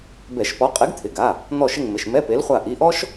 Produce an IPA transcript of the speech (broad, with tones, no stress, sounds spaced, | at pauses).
b ɛ˧˩˧ ʃ p ɔ˨˥ qʼ e˨˥ ɡ t̪ʰ ɪ˩˧˩ ɡ a˩˧˩ | n̪ ɔ˦˨ ʃ ɪ˦˨ ŋ m ɪ˩˧˩ ʃ m ɛ˧˥˧ p e˨˥ l χʷ a˦˨ ʔ i˩˧˩ ʔ ɔ˥ ʃ